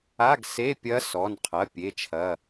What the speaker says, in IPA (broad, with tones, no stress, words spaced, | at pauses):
a˧˥˧ɡse˧˥˧pʲɐ˧˥ sɔ˩˧˩nqʰɐ˩˧˩ pʲe˩˧˩t͡ʃʰɐ˩˧˩